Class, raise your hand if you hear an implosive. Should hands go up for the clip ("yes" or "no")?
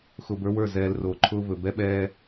yes